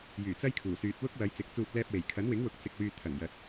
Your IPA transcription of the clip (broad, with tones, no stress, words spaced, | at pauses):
jyː˨˩t͡sɐ˥jkʰuː˨˩ syː˨t̚wʊ˥k̚wɐ˨˧j t͡sɪ˨˥k̚t͡suː˧t̚ lɛː˧p̚we˨˩j kʰɐ˨˥nwɪ˨˥ŋwʊ˨˥k̚ t͡sɪ˧k̚wyː˧ t̪ʰɐ˨˩ŋjɐ˨t̚